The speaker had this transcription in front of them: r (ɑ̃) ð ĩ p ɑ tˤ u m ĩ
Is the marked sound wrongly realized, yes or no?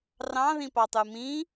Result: no